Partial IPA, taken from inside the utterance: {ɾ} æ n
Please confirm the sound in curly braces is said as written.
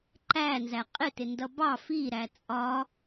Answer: no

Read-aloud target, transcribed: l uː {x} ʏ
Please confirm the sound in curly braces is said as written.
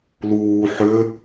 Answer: no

